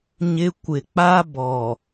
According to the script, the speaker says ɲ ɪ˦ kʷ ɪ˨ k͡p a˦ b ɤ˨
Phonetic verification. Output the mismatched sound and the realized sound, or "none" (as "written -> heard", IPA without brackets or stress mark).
ɤ˨ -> ɔ˨